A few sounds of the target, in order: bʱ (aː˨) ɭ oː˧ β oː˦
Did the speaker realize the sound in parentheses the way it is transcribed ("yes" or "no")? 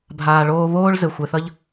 yes